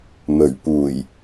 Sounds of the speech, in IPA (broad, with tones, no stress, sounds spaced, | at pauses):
m ɵ˨˩ ɥ p uː˨˩ j